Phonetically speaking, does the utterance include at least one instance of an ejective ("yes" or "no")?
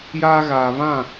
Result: no